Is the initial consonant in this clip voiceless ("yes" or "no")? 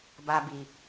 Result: no